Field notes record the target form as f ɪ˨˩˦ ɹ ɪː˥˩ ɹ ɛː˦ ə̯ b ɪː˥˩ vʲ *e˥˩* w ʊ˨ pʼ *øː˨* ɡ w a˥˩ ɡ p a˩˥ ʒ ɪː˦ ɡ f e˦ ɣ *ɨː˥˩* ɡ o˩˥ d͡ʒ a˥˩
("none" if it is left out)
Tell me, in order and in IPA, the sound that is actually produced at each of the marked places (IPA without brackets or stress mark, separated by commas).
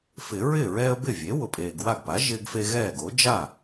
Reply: e˩˥, eː˨, ɛː˥˩